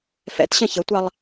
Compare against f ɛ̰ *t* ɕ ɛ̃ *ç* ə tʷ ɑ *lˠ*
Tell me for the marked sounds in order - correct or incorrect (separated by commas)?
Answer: correct, correct, correct